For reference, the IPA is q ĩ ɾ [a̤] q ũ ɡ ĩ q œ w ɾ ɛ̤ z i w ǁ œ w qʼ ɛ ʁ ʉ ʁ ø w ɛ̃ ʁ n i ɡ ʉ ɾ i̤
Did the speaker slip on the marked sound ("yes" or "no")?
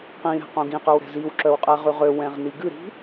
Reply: yes